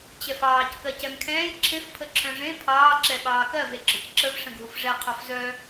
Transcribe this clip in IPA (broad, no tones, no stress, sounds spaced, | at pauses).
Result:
t͡ɕ ɛ f ɑː c k ɜ c ɛ m kʰ ɛ̃ː j ǁʰ ẽ f pʰ ə ǁʰ œ̃ ʐ ẽ pʰ ɑː ǁ ɛ ɓ ɑː k ɜ v e ɡ͡ǁ ɔ c ǁ ə v ʂ ə̃ ɡʱ u f ʐ ɛ qʰ ɔ f z œ